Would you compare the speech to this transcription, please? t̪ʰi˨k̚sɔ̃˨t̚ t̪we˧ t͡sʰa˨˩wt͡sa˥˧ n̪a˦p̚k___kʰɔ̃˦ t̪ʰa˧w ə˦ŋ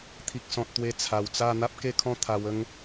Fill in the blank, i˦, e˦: e˦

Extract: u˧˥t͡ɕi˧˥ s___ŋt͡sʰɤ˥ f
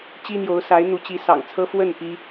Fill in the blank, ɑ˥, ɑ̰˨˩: ɑ̰˨˩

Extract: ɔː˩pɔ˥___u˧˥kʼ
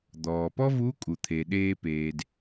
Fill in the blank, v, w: v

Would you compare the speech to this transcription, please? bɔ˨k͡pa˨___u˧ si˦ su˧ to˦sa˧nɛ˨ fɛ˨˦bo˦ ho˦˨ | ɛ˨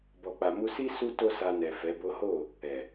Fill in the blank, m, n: m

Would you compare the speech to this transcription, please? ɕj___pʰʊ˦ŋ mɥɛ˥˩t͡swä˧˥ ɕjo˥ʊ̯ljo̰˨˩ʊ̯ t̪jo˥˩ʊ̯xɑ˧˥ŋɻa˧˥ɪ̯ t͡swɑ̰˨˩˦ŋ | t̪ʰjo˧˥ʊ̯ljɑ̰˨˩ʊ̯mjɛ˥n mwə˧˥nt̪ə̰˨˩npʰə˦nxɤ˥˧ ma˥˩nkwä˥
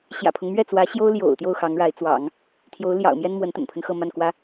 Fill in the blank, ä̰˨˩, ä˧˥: ä̰˨˩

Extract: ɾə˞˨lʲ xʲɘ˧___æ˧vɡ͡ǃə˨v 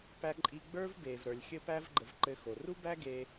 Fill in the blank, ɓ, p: p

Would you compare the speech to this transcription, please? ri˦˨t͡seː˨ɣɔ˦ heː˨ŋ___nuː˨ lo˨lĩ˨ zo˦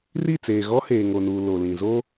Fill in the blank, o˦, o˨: o˨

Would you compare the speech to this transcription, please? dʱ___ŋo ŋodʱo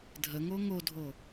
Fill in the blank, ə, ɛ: ə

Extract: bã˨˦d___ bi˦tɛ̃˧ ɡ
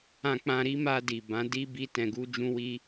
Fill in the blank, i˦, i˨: i˦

